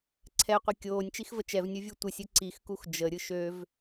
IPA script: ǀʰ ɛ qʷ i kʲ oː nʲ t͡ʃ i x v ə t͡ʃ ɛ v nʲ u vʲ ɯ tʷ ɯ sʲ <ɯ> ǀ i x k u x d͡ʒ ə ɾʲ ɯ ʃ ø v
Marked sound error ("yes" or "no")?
no